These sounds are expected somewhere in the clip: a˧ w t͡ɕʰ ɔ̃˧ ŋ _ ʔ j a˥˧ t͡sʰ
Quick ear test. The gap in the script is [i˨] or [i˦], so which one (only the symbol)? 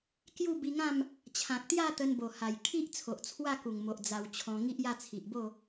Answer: i˦